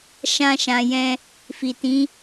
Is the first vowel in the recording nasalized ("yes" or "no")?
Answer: yes